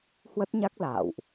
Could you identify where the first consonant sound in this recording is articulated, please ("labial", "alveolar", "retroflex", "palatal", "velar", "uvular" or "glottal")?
glottal